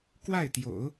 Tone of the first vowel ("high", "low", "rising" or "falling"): falling